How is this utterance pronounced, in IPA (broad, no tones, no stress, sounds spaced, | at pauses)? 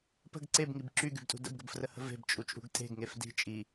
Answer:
p ə̤ ɡ ǀ e b ŋ i b ǁ y ɡ y b tʼ ṳ d ə̰ b ɡ ə b f r ə h ə̤ v e̤ b t͡ʃʼ u t͡ʃʼ ṳ ɡ tʼ e̤ ɡ ŋ e f d i̤ t͡ʃʼ i